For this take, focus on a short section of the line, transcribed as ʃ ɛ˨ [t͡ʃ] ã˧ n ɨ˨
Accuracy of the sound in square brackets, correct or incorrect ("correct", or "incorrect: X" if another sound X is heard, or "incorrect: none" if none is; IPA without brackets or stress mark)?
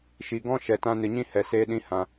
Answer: incorrect: t